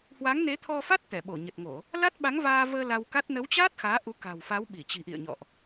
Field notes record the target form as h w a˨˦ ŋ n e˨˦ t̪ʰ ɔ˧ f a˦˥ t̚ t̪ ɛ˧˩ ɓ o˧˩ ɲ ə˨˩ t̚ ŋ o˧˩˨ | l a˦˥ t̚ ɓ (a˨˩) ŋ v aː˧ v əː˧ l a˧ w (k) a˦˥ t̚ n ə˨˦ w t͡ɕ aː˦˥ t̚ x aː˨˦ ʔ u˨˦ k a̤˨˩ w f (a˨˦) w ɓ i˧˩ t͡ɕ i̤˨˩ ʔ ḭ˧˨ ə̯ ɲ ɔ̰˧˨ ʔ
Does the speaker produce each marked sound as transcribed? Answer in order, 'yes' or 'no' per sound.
no, yes, yes

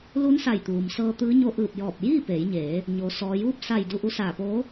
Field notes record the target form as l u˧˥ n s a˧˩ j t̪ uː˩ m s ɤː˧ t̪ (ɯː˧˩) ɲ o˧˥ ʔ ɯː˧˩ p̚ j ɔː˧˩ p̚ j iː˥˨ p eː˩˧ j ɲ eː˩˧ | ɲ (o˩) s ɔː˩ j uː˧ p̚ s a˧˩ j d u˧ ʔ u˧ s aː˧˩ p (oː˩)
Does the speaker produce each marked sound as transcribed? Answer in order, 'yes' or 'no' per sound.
no, yes, no

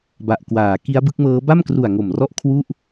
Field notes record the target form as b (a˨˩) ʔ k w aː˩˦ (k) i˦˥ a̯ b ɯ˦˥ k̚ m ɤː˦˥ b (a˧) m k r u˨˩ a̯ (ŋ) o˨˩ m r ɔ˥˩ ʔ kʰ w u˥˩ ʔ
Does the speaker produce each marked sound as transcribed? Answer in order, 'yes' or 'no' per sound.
yes, yes, no, yes

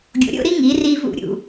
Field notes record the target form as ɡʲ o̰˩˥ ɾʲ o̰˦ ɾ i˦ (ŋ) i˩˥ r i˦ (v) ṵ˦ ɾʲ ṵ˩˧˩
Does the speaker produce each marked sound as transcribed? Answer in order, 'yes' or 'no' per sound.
yes, yes

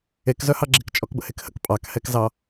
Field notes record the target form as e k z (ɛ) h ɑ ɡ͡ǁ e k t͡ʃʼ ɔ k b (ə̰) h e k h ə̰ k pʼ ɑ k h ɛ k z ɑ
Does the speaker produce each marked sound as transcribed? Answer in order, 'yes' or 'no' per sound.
no, yes

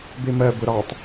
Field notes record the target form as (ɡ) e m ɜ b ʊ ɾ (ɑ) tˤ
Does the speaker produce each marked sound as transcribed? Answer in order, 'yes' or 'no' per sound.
no, yes

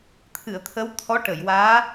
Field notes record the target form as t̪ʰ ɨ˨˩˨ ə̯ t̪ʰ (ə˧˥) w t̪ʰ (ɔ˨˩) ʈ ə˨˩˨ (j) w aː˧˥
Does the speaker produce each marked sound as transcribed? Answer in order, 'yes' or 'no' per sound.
yes, no, yes

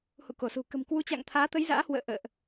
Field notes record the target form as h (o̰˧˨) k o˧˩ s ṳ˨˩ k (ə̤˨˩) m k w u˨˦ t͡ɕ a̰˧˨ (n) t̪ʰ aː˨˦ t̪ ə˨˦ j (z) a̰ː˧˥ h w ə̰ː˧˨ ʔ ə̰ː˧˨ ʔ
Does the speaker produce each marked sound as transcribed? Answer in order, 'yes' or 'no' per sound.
no, yes, no, yes

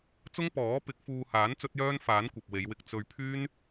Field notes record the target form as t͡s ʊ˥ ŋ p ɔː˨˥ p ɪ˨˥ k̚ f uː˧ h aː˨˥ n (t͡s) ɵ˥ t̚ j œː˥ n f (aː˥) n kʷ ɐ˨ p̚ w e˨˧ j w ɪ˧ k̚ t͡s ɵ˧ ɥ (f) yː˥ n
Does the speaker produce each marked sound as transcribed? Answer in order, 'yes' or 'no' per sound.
yes, no, no

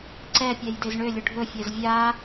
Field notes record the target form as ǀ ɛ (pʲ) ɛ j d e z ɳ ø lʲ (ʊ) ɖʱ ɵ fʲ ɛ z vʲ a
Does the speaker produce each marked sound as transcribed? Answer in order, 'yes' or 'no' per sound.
yes, yes

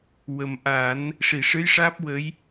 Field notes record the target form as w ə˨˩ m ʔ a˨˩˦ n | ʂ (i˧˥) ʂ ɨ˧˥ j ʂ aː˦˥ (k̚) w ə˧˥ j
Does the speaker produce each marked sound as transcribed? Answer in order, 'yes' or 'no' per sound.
no, no

